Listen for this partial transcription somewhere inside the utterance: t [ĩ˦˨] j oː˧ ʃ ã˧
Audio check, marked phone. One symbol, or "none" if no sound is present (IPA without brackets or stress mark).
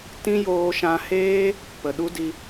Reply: ĩ˦